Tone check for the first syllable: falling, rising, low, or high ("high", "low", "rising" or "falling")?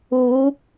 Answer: rising